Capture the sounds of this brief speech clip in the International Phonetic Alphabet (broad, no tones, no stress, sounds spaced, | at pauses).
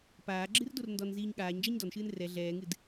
p aː ɡ͡ǁ ɨ r d o r n d ɔ n z iː ɲ ɠ aː ɲ d͡ʒ ɛ ɲ d ɔ n ʃ ɨː n r ɛ ɮ ɛː ŋ ɨ d